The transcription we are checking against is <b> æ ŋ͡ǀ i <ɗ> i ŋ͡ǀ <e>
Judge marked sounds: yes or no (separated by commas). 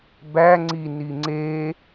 yes, no, yes